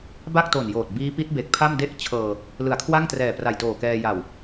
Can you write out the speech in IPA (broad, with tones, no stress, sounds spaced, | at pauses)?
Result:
b a˥˩ k̚ t o˨˩ n j oː˨˩ t̚ b iː˦˥ p i˦˥ t̚ b e˨˩ k̚ pʰ a˥˩ m d e˥˩ ʔ t͡ɕʰ ɤː˧ | l ɯ˩˦ a̯ kʰ w a˥˩ ŋ t r ɛː˨˩ p r a˨˩ j t oː˨˩ k ɛː˧ j a˨˩ w